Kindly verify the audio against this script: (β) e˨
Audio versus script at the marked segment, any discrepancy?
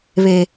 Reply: no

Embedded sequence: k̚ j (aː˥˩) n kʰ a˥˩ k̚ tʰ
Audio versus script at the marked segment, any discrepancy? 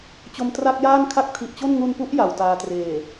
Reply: no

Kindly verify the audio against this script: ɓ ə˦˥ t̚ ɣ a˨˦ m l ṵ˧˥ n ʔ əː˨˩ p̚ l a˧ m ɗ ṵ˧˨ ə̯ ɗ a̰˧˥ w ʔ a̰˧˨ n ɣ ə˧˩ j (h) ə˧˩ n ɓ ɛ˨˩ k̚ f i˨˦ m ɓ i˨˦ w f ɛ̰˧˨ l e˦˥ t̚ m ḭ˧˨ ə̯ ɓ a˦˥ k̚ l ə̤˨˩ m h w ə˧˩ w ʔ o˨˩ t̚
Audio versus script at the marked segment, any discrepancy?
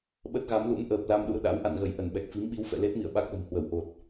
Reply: yes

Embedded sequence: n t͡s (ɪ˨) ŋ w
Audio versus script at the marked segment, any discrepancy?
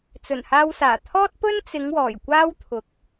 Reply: yes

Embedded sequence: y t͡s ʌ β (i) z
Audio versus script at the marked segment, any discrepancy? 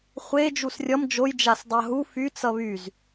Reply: yes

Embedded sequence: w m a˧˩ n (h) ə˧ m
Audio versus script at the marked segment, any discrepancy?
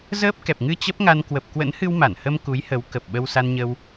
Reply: no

